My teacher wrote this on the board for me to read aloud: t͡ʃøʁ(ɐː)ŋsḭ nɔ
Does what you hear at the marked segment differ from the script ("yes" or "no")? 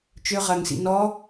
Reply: no